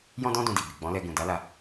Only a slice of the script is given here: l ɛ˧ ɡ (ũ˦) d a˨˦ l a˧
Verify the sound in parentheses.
incorrect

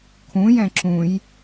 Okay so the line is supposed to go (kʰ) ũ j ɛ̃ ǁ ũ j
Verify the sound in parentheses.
correct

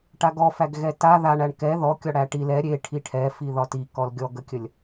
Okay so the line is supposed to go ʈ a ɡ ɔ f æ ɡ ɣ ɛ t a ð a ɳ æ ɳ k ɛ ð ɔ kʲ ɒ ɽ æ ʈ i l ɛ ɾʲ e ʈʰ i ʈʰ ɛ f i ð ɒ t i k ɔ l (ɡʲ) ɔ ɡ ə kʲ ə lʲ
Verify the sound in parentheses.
correct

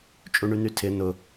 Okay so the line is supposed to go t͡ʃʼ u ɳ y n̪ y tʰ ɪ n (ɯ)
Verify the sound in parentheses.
incorrect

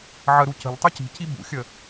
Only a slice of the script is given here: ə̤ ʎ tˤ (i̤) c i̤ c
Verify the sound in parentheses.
incorrect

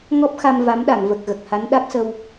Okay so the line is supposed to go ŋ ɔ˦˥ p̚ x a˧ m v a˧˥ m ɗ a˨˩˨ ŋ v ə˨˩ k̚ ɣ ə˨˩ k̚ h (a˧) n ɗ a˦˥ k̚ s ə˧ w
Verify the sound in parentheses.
incorrect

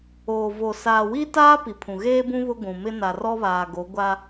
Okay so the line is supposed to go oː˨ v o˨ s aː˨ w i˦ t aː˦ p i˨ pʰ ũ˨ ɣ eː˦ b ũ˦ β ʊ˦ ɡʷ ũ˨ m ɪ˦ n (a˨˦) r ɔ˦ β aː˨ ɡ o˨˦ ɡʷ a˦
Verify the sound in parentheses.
incorrect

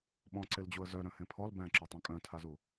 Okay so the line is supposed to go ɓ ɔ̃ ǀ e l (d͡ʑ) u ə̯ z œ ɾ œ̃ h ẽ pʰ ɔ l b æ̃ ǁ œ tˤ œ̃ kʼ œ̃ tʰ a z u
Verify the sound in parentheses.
correct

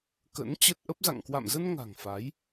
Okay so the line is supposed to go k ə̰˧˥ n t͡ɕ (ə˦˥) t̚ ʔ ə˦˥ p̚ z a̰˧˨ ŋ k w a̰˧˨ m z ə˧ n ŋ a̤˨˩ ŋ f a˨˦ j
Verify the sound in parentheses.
correct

